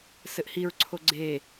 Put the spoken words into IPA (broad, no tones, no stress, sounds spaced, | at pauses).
s ɘ ʔ h i ɹ ǀʰ o ɡ͡ǀ e